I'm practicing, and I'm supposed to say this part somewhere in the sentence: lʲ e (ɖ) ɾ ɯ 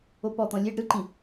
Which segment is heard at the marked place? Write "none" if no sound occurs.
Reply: ɖ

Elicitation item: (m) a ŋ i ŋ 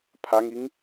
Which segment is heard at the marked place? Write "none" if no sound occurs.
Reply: pʰ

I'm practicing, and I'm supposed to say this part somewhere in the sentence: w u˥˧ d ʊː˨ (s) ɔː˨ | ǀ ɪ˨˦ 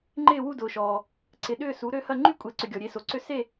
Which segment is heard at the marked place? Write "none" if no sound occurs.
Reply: ʃ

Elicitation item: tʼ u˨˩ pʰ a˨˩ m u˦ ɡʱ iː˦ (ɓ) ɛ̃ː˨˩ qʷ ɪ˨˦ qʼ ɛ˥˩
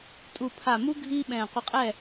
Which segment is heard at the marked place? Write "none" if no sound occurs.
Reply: ɓ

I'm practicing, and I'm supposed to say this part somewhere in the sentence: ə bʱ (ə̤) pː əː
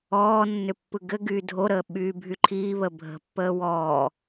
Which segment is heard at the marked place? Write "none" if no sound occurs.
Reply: ə̤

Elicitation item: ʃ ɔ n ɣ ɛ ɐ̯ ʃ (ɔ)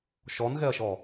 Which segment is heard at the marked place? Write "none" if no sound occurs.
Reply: ɔ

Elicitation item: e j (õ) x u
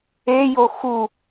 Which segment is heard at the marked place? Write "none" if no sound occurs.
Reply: o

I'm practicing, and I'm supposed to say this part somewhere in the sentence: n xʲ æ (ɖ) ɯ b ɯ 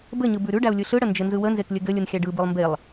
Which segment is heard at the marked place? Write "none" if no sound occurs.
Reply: ɖ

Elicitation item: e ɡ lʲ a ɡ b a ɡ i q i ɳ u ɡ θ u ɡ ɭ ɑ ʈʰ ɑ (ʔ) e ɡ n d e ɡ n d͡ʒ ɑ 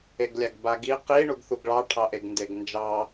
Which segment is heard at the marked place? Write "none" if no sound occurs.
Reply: ʔ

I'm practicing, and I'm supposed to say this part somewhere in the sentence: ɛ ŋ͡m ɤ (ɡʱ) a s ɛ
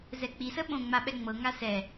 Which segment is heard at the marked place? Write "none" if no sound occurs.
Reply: ŋ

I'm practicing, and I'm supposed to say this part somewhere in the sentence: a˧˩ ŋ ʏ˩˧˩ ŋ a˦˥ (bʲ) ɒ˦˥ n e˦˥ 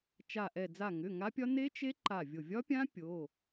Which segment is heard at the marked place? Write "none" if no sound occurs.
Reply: pʲ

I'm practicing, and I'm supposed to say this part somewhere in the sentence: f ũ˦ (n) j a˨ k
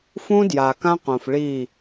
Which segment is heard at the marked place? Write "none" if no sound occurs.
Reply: d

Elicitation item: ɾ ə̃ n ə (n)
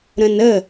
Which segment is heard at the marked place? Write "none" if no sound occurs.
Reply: none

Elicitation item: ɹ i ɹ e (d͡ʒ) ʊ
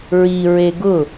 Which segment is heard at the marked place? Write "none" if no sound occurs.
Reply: ɡ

